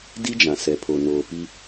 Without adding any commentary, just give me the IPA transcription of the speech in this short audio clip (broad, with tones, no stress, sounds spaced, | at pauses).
d i˦ d͡ʒ ã˨ s ɛ˨ pʰ o˨ n oː˨ p i˦